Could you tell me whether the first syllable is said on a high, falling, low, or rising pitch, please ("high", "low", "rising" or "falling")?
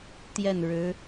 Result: falling